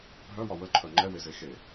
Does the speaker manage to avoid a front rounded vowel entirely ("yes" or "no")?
no